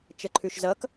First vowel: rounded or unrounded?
unrounded